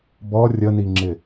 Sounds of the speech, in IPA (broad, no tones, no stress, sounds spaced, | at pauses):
b ɔ rʲ ə n i ŋ͡ǁ ɪ